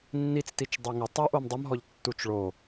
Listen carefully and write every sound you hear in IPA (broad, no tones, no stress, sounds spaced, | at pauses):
nː i t͡s t i t͡ʃ dˤ e ŋ ɪ tˤ u ʔ o m dˤ ʊ m ɦ ɔ ʎ tː u t͡ʃ ɭ o